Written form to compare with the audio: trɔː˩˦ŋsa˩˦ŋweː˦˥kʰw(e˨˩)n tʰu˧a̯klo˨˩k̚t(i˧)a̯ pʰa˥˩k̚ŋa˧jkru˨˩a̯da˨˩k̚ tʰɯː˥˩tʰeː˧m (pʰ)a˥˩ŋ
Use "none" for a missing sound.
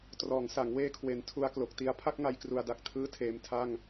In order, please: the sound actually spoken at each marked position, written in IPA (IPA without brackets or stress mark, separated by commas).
e˨˩, i˧, tʰ